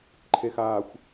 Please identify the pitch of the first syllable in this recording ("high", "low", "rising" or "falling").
low